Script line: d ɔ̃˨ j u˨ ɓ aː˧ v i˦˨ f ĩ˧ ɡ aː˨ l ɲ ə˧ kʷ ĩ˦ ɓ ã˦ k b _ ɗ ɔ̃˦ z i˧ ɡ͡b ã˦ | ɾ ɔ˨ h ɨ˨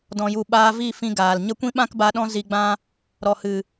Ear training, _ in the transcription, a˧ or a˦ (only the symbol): a˧